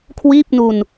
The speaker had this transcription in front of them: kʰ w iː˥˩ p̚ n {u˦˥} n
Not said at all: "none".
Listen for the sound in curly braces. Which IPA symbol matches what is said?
u˧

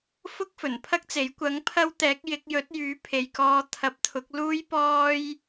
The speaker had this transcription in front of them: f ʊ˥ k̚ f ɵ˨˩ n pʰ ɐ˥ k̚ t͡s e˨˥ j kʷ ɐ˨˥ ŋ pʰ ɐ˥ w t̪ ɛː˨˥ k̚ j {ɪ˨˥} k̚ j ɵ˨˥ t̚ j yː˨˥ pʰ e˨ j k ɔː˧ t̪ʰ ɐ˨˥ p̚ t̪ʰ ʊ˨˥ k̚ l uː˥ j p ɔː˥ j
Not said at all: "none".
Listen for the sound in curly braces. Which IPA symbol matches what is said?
ɪ˨˥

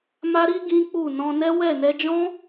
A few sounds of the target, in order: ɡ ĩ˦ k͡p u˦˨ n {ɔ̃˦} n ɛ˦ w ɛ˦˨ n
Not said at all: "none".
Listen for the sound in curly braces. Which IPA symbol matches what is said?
ɔ̃˧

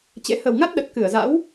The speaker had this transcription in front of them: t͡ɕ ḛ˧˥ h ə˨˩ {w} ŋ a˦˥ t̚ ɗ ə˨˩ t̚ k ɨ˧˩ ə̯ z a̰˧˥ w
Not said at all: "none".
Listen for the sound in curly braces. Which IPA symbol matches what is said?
w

